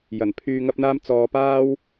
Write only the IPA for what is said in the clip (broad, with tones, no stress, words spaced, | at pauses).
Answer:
jɐ˨˩npʰyː˧ŋɐ˥p̚n̪aː˥m t͡sɔː˨˧paː˥w